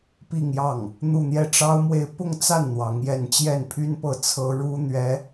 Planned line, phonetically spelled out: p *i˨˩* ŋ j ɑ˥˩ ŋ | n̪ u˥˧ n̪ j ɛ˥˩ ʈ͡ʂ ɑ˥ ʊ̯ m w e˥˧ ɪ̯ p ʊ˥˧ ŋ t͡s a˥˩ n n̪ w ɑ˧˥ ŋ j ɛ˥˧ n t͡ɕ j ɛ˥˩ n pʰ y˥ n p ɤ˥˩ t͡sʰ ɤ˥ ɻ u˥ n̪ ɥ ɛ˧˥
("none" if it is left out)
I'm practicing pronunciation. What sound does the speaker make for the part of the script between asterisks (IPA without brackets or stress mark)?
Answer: i˥˧